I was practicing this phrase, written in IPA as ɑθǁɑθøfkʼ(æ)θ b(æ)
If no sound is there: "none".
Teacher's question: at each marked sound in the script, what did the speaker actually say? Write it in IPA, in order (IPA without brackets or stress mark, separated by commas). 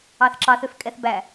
ɛ, æ